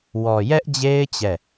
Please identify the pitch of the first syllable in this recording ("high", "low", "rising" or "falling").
low